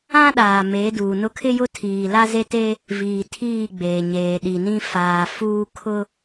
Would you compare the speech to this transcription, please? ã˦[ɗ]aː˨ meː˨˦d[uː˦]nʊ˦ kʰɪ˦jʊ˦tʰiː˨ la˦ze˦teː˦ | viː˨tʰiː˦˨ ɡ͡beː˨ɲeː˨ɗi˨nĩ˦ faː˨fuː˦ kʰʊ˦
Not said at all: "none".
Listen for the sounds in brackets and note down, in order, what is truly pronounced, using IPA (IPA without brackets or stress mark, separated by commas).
ɗ, uː˨